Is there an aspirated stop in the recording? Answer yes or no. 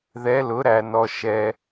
no